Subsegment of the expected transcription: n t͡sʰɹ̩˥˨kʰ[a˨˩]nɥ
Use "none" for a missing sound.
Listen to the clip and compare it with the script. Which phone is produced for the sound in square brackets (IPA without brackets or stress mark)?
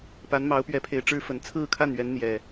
a˥˨